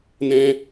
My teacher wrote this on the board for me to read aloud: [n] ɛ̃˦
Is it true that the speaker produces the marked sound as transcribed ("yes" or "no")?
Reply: yes